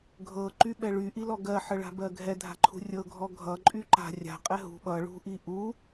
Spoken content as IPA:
ɡʱ ɤ ǃ y ɓ ɛ ɭ y ʔ i l ɔ ɡ ɜ ħ ə ɭ a̤ b ɜ ɡʱ ɛ dʱ a̤ ǃʰ ṳ rʲ ɤ ɡʱ ɔ ɡʱ ʌ ǃʼ y ǃ a̤ rʲ a̤ qʼ ɛ ɦ ṳ ɓ ʌ ɭ ṳ ʔ i ʔ u

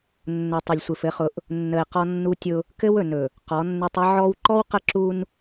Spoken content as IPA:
nː ʊ˨ tˤ ɵ˨ lʲ sʷ ɘ˨ f ɘ˨˦ χ ʊ˨˦ ʔ | nː ə˨ ɪ̯ q ɔ˦ nː u˦ tʲ ʊ˦ | k ɘ˦ w ɵ˨ n ɵ˨ | q ɔ˨˦ nː ɘ˦ tˤ ə˦ ʕ ɔ˦ w ǃ ɔ˦ w q ə˦ ǁ u˦ n

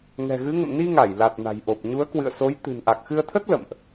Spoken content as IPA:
ŋ ɛ̤˨˩ ɣ ɨ˨˦ ŋ ə̰˧˨ m n i˧ ŋ a˧˩ j l a˨˩ t̚ n a̤˨˩ j ʔ o˨˩ p̚ ɲ u˨˦ ə̯ k w ɨ̰˧˨ ə̯ s o˨˦ j t̪ ɨ̤˨˩ n ʔ a˨˩ k̚ x ɨ˧ ə̯ t̪ʰ ə˦˥ t̚ l ə̰˧˨ m ʔ

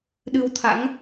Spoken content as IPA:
ɗ ɨ˧ w t̪ʰ a̰˧˥ ŋ

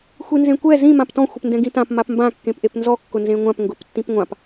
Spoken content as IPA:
xʷ i n z ẽ kʷ ɛ z ĩ m ã p t ɔ̃ xʷ ɪ p n d ɛ̃ ɡ ĩ t ã p m a p m b ã kː ẽ p ʔ e p n z ɔ kː ʊ n z ẽ ŋʷ ã p ŋ ɡ ʊ p tː ĩ p ŋʷ ã p

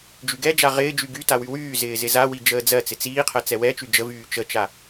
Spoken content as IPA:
d͡ʒ y ɡ ɛ d͡ʒ a ʁ ɪː d͡ʒ y ɡ y t a w y w yː z ɪː z ɪ z a w i d͡ʒ əː d͡z ɜ t͡s ɪ t͡s iː qʰ ɜ t͡s ɛ w ɛ t͡ʃ y d͡ʒ ə v yː t͡ʃ ə t͡ʃ a

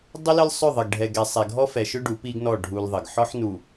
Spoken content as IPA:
dˤ ə˦ l ə˦ l sˤ ʏ˦˨ ðˤ ə˨ ɡ ɖʱ ɛ˨ ɡ ɛ˨ sˤ ɛ˨ ɡʱ ɔ˦ f ɛ˨ ʃ ʏ˦ ɖ u˨˦ p i˦ ɡ n ɔ˦˨ ɖʱ u˦ l ðˤ ə˨ ɡ ħ ɔ˦ ħ n u˨

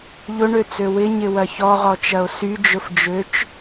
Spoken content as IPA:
ʎ ʊ ɳ ø t͡s ø w ɪ ɲ ɪ w ɐ ç ɔ ʁ ɔ t͡ʃ ɐ o̯ s y d͡ʒ ʊ f d͡ʒ ø t͡ʃ

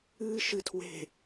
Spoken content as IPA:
ɨː ʃ ɨ tʰ w e̤

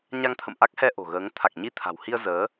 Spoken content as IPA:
ɲ a˧ ŋ t̪ʰ ə̰˧˨ m ʔ a˦˥ k̚ h ɛ˧ ʔ o̤˨˩ ɣ əː˨˦ ŋ t̪ʰ a˨˩ k̚ ɲ i˧ t̪ʰ a̤˨˩ w h i˧ ə̯ z əː˨˦

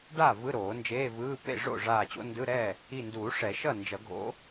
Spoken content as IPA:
ɖ a˥˩ v ɯ˧˥˧ ɾ oː˨˩˦ n d͡ʒ eː˧˥˧ v ɯː˧˥˧ p ḛ˥˩ ʐ o̰˥˩ ʐ aː˧˩ t͡ɕ o̰˧˥˧ n d ɯ˧˥˧ ɾ ɛ˥˩ | i˧˩ n d uː˨˩˦ ʂ ɛ˨˩˦ ʃ ʌ˥˩ n d͡ʒ ʌ˨˩˦ ɡʱ o̰˨˦

